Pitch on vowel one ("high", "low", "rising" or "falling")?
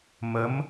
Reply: rising